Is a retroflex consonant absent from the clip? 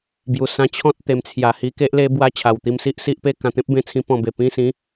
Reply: yes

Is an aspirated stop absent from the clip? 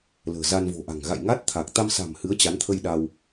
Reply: no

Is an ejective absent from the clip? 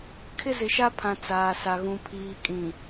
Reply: no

